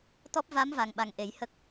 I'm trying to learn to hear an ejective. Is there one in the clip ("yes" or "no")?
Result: no